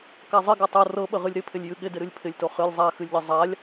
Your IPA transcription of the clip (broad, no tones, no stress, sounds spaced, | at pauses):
k a zˤ ɪ ɡ a tˤ o r ɤ ɓ ə ʁ ɨ lʲ ɾ ɪ pʰ ɪ lʲ j ɨ ɠ ɪ d ɪ ɾ ɨ lʲ pʰ ɪ lʲ t o χ ɨ lʲ zˤ a x ɨ lʲ ʎ ə zˤ a lʲ